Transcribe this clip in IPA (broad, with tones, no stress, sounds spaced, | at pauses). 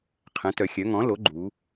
qʰ ɛ̃˩˥ t œ˩˧ xʲ œ˩˥ ŋ ɔ̃˩˥ l o˩˥ ɡ͡ǃ u˩˧